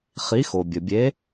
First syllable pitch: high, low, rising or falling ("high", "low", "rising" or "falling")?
rising